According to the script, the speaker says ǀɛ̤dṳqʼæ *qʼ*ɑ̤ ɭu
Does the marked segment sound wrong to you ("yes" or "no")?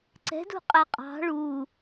no